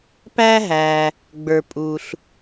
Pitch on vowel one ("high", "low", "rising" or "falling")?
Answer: high